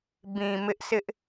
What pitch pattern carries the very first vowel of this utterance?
low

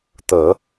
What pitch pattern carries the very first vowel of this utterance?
low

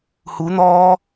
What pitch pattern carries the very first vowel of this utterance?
rising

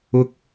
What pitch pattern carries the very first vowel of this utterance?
high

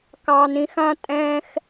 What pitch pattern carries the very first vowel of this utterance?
high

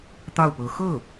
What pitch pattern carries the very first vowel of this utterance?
falling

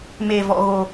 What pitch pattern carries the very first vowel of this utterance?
low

